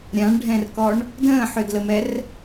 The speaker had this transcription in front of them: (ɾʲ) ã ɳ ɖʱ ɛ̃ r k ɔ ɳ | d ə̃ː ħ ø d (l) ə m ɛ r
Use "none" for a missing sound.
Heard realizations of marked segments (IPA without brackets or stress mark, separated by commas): ɾʲ, l